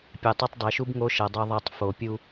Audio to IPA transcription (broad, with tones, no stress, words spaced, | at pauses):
pʲe˨tˤʌ˦tˤ dˤe˨ʃu˦b ŋo˦ʃʌ˨dˤo˦ðˤa˦tˤ fo˨pʲu˦